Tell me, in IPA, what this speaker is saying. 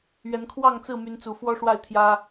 ɥɛ˨˦nkʰwɑ˥˨ŋt͡sɹ̩˥˨ my˨˦nt͡su˨˩fwɔ˦ ʂwa˥˨ɪ̯t̪ʰjä˦

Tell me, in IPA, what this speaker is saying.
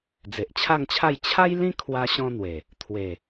d͡ze˨ʔt͡ɕʰa˥˧ŋt͡ɕʰa˥˧j t͡ɕʰa˦jlĩ˦ kʰwa˦ɕɔ̃˦n̪we˨˩ | t̪ʰwe˨˩

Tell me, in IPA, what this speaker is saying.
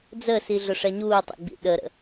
d͡zəsiɮʊʂɛ ɲuːtˤə̰ɡ͡bḭ ɗəɾə̰

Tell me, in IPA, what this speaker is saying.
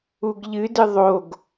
uɡʎɨdɨ ðˤoɡ

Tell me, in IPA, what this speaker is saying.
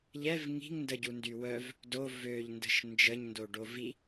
ʎɛv ŋi̤ŋndəɟundy wœv | do vøʎndə̤ʃ nd͡ʒəɲndoɖo vi

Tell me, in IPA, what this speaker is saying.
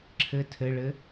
ǁʰɘ tʰɘɭɘ

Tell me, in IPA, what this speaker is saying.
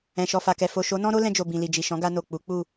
ɛ̃˨ʃɔ˨fa˨kɛ˨ fo˨ ʃo˨˦nɔ̃˦ɾo˦ lɛ̃˧d͡ʒo˨ bĩ˨li˨d͡ʒi˨ ʃɔ̃˨˦ɡa˧no˨ k͡pu˨˦k͡pu˦˨

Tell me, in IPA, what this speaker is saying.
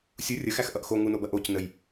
sʲu rʲəxæx ʔʌʔxo ŋunobɐ ʔoc nəj

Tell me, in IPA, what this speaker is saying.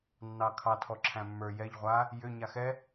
nːɑkʰɑ tʰɔǁʰæ̃mːə˞ jɛʎ ʁʷa | jʏ ɲaxɛ

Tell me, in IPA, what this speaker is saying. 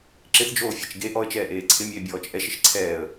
ǁɪθd͡ʒoːfʲɛt͡ʃ ɡe ʔɔə̯t͡ʃɛːʔeː ǀʰɪmʲeːbʲɔːt͡ʃ ʔɛʃɪʃ ǀʰɛːə̯

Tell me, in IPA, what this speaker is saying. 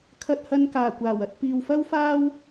kʰɐ˧t̚hɐ˧nkaː˨˩ kʷaː˨˩wɐ˧t̚ piː˨wfɐ˥w faː˥w

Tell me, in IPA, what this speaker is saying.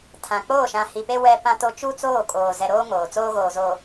tʰã˨ k͡poː˦˨ʃã˨hi˨pe˦ wɛ˦pã˦to˦ t͡ʃu˦t͡soː˦˨kʼoː˨ zɛ˨ɾoː˦ ŋoː˨ t͡soː˦ɣoː˨zoː˨

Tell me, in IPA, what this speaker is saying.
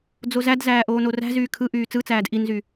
d͡zozædzæː ʔoːnoræ̤zyː kʰɯ ʔyːt͡sɯt͡sæːd ʔinzy

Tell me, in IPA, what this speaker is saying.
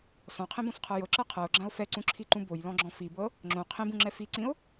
sɔ̃qʰĩbõsqʰɤ jɤǁɤ qʰɤo̯ɡ͡ǁão̯ fɛǀũǁʰiǃũ bojlɔ̃ɡ͡ǁɔ̃ fibɤ | ŋ͡ǁõ qʰĩbũŋ͡ǁɛ fiǀĩo̯

